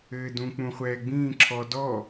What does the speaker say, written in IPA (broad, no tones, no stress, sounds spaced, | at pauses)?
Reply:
ɘː d ũ k͡p ũ χʷ ɛː ɡ͡b ĩː ǁʰ ɔ d ɔ